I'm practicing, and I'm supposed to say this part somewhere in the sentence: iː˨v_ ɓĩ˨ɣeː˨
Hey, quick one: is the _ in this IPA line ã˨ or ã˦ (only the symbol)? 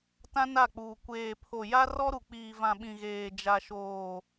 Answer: ã˨